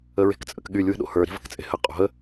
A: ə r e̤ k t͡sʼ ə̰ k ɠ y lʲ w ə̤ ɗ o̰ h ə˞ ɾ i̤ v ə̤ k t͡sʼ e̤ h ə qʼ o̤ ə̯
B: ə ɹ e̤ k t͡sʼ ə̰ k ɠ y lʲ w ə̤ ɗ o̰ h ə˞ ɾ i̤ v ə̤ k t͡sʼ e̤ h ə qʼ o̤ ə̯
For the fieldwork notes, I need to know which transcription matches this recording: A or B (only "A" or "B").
B